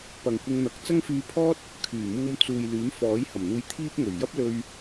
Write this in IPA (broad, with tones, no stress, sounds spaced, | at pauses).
p ɐ˨ ŋ kʷ ɪ˧ ŋ n̪ ɐ˨˥ k̚ t͡s ɐ˥ ŋ f yː˧ pʰ ɔː˥ t̚ | kʰ yː˨˩ m uː˧ m t͡s uː˨ j l yː˨˥ m f ɔː˨˥ j h ɐ˨˩ m n̪ uː˧ j t̪ʰ iː˥ p̚ ŋ ɵ˨˩ ɥ j ɐ˥ p̚ l ɵ˧ ɥ